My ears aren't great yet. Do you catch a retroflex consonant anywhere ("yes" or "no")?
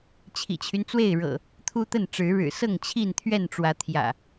yes